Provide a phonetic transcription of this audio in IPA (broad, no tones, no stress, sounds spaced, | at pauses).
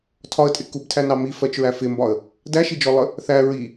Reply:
tʰ ɒ ə̯ tʼ ɪ k u b tʰ æ n ɑ m i f ɜ t͡ʃ ɹ æ f ɪ m b ɒ ə̯ | d æ ʃ i d͡ʒ ɔ lˠ ə | θ æ ɹ i